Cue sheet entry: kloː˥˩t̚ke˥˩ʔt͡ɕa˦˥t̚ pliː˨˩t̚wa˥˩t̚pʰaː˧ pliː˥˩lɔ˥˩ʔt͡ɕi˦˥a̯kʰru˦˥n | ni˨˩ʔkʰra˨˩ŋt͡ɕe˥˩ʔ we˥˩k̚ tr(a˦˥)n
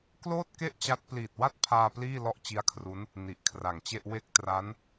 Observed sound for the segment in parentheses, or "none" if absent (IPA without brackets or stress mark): a˦˥